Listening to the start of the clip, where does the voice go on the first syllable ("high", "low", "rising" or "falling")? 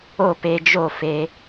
falling